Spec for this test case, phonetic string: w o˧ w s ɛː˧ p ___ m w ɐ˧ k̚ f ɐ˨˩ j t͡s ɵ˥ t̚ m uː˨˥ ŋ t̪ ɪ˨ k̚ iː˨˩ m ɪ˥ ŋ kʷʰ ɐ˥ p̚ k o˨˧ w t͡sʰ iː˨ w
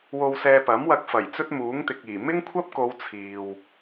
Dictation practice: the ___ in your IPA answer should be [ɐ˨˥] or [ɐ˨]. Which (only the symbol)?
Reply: ɐ˨˥